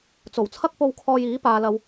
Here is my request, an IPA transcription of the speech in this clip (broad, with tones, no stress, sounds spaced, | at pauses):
t͡s o˨˩ w t͡sʰ ɐ˥ k̚ p o˧ w kʰ ɔː˧ j iː˨˥ p aː˨ l ɐ˨ w